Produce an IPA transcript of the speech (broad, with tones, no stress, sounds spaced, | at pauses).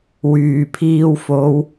w yː˨˩ pʰ iː˧ w f o˨˧ w